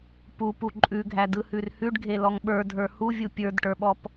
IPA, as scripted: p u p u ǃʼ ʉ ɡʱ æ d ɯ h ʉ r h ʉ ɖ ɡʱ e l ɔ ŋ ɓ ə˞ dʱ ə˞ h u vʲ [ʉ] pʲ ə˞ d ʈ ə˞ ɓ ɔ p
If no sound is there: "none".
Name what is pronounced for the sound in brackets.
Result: u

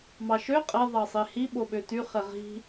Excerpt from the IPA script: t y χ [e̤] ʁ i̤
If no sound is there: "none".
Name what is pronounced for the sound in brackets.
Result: e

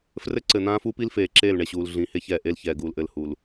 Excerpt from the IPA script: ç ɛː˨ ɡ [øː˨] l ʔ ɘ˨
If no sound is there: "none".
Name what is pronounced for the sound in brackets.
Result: uː˨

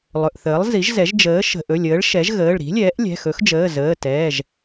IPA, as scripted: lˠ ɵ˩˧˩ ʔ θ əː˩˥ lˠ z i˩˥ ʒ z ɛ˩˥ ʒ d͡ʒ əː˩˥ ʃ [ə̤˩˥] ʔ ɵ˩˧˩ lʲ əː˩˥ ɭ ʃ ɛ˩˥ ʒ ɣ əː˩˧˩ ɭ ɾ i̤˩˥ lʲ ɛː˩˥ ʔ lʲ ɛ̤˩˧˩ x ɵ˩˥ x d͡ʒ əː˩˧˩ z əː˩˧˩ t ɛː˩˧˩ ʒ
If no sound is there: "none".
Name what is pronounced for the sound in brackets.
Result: ə̤˩˧˩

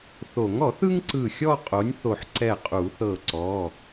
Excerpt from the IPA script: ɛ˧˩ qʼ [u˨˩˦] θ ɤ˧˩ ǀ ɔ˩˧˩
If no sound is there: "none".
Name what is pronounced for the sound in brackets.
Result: u˨˩˦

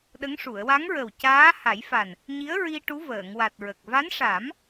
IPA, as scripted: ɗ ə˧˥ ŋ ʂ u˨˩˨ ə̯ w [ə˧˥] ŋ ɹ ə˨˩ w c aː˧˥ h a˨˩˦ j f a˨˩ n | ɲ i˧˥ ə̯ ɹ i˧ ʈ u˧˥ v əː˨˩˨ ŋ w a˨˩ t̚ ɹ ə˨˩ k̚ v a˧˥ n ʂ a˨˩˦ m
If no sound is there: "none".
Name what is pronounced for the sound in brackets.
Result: a˧˥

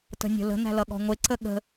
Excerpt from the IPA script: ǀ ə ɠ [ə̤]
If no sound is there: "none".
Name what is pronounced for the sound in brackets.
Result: ə̤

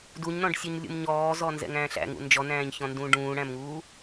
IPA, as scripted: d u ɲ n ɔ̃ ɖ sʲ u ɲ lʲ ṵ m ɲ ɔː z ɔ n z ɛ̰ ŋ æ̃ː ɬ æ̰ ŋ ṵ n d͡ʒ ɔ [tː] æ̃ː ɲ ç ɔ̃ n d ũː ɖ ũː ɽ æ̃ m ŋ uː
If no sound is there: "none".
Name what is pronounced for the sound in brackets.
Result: n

